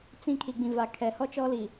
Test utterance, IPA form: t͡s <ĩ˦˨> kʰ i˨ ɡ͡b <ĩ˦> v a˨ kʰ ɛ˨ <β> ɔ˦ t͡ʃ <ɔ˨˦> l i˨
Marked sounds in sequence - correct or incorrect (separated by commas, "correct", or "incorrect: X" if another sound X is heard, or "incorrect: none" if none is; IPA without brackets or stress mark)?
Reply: correct, incorrect: ĩ˨, incorrect: h, incorrect: ɔ˦